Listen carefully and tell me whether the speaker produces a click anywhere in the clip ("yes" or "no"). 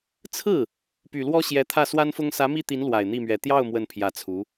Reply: no